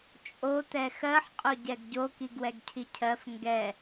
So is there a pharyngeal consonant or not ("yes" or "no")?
yes